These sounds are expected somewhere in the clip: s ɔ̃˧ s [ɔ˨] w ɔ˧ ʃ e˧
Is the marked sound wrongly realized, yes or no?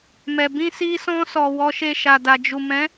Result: no